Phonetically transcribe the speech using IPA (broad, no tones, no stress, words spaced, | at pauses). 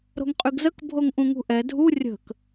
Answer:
ɾo̤ŋqʼyɡzək bʱoŋʔũŋṳʔɛ dʱu rʲə̤k